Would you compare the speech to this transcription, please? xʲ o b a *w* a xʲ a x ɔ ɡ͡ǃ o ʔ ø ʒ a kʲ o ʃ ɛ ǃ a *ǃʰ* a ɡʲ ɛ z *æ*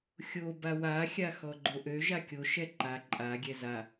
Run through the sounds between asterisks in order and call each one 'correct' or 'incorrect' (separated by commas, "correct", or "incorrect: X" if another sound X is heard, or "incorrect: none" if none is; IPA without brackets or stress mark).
correct, incorrect: ǃʼ, incorrect: a